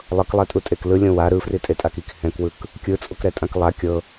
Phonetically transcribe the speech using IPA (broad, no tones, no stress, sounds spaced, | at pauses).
lˠ ɤ k lˠ ɛ tʼ u tʼ e k l ɯ lʲ õ w a ɾ ɯ f r i tʼ e tʼ a k i k h ɛ̃ k w ɯ k | kʲ ɯ t͡sʼ o k ɾ ɛ tʼ ã k lˠ a kʲ ɤ